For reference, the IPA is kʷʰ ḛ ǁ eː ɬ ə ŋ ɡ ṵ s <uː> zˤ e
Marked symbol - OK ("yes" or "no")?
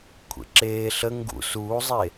yes